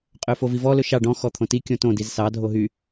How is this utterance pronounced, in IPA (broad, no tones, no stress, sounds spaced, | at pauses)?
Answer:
qʼ ø f o v i v ɔ l ɵ ʃ ɑ ɖ ɔ̃ x ɔ t̪ʰ õ t i kʲ õ t õ d i z s ɑ dʱ o ɦ y